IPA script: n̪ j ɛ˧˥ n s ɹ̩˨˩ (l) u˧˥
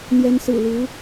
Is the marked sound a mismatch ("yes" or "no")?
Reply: no